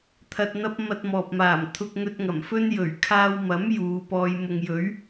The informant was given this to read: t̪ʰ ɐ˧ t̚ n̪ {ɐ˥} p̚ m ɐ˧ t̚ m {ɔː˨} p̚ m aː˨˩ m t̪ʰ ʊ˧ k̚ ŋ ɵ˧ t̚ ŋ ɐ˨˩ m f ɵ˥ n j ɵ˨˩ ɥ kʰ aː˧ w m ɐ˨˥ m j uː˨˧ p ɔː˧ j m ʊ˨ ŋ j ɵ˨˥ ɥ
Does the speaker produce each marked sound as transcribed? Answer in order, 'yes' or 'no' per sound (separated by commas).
yes, yes